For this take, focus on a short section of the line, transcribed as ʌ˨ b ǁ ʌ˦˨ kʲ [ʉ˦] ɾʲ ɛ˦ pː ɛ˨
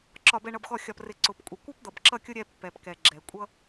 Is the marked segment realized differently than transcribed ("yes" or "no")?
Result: yes